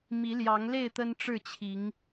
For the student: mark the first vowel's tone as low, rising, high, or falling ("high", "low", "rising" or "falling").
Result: rising